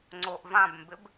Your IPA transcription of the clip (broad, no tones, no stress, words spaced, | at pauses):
ŋ͡ǀoʔvãbmbɪb